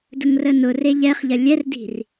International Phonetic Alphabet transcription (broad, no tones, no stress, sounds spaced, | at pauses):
d ə ŋ r ə n ʊ r e ʎ ɛ χ ʎ ɐ lʲ ɛ r d i̤ r